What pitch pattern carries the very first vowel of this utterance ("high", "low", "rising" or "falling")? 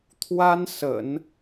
high